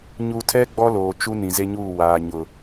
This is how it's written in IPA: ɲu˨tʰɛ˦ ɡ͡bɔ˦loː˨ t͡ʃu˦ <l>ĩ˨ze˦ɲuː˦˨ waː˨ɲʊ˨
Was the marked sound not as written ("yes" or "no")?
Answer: yes